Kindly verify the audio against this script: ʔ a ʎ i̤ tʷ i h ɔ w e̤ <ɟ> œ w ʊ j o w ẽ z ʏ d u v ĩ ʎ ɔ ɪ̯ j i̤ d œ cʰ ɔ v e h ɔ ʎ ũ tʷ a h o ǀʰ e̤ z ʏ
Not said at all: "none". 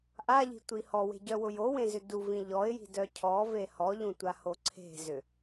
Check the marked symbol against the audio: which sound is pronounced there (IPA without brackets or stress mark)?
ɟ